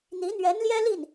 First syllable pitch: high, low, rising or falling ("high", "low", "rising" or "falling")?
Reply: rising